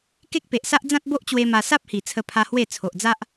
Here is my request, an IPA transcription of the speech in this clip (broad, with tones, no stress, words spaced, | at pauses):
ke˦k̚pe˨ʔsa˦ʔ d͡zã˦t̚bo˦ʔt͡ɕwe˧ ma˧ sa˦p̚hi˨˩ t͡sʰə˧pʰa˧ hwe˥˧ t͡sʰo˨ʔd͡za˦ʔ